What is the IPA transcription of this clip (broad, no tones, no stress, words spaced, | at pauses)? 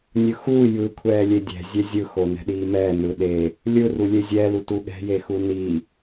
nʲɯxuː jɯ kʷʰɛːlʲedʲɛ̤ zʲɛzʲɯ xonɛ̤ɗiːmɛː nɯɗe | lʲɯ rulʲezʲɛ lutuɠɛ̤ jexuni